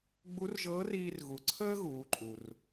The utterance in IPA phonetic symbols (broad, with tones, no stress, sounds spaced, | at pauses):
ɡ͡b u˧˥ r ʒ ɤː˧˥ r iː˧ r ɣ u˩˧ ǀʰ əː˥ ɣ uː˩˧ ǃʼ u˩ r